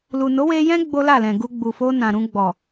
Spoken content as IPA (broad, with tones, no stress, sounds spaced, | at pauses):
l u˨ n o˨˦ w e˧ j ɛ̃˦ ɡ͡b o˦ l a˦˨ l ɛ̃˨ ɡ u˧ ɡ͡b u˨ f o˧ n ã˨ ɾ ũ˧ ɡ͡b ɔ˨